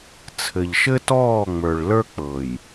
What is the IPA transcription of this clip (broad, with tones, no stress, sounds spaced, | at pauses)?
t͡sʰ ɘ˨ ʎ ʃ ɘ˦ t ɔː˦˨ ŋ͡m ə˞˨ ɭ l ə˞˦ k͡p ɤ˨ j